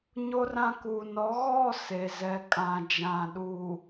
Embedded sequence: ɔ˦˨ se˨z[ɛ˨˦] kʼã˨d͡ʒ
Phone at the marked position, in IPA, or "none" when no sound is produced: ɛ˨˦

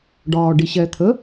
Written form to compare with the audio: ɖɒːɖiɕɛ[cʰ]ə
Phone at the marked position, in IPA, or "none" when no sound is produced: t̪ʰ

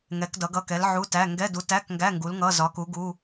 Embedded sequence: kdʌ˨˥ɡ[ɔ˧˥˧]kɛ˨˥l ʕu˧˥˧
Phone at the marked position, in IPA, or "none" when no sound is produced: ʌ˧˥˧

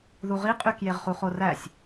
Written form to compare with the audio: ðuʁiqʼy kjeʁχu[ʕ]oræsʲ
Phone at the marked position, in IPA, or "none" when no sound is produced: χ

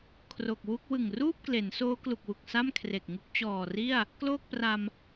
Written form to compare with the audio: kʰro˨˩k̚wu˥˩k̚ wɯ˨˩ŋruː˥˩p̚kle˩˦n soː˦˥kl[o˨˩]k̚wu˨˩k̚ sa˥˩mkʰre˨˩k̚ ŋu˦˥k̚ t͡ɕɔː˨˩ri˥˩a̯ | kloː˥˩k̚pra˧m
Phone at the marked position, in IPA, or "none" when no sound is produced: u˨˩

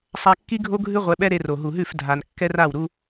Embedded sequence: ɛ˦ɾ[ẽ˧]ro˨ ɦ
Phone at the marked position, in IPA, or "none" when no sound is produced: e˧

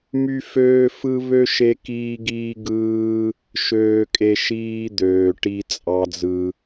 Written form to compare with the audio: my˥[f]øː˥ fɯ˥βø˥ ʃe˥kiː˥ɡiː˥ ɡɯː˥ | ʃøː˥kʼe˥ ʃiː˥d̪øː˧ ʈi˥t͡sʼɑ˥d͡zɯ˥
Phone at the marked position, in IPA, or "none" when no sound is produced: f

